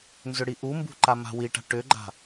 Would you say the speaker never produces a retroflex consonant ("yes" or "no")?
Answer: no